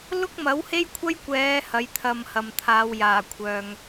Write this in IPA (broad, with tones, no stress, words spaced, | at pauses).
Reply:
lʊ˥k̚mɐ˨˥whe˥jkʷʰɐ˥j kʷɛː˨˧ hɐ˨˥jt̪ʰɐ˧mhɐ˨mt̪ʰaː˨˧w jaː˨˩kʷʰœː˨ŋ